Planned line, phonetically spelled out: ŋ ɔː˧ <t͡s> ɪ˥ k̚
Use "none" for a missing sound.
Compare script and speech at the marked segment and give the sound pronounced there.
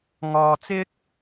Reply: t͡s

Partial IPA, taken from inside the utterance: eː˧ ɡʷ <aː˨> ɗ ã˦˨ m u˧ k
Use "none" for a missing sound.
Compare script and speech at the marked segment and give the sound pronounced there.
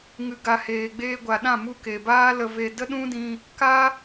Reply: a˨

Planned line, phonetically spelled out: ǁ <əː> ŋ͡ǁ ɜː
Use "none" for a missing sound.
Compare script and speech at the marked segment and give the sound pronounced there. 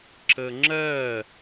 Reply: əː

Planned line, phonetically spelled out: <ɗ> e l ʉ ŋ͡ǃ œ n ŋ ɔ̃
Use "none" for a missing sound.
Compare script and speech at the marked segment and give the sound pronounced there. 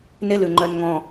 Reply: n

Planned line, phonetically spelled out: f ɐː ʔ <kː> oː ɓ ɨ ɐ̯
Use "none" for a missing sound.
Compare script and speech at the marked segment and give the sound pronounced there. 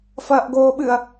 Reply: ɡ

